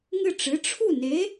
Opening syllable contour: falling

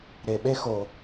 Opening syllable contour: low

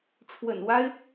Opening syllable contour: low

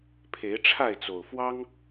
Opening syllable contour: rising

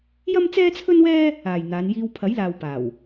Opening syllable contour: high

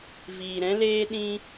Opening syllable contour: low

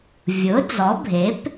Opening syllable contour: rising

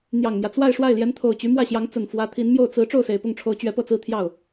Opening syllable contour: low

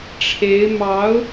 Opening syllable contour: rising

